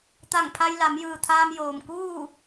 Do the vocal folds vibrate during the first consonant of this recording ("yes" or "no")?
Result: no